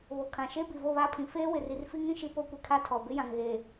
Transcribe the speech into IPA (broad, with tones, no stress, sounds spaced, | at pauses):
β o˨ kʰ ã˨ ʃ e˦ b i˨ v o˦˨ β a˦˨ pʰ ĩ˨ f eː˦ w ɪ˨ r i˨ r f i˦ ŋ ĩ˦˨ ʃ i˦ p o˦ kʷ i˨ kʰ a˦ tʰ ɔ˨ b ɪ˦ j ã˨ ŋ ɣ e˨